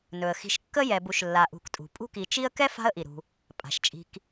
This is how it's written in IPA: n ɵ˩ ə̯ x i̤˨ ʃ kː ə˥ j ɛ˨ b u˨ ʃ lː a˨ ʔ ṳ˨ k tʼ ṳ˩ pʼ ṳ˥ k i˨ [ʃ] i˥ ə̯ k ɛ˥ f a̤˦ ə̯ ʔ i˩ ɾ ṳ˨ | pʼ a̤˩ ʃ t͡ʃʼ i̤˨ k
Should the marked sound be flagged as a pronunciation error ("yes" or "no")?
yes